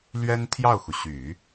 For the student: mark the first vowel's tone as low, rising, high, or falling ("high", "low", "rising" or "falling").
high